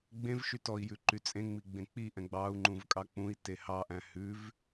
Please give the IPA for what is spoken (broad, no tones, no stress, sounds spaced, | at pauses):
ɡ͡b ẽ v ʃ y t ɔ i̯ j ʉ ǃ y t͡sʼ ẽ ŋ͡m i ɡ͡b ẽ k͡p i ʔ ɛ̃ ɡ͡b ɑ u̯ ŋ͡ǃ ũ v kʼ ɑ k͡p ũ i̯ t e h ɑ ʔ æ̃ h ʉ v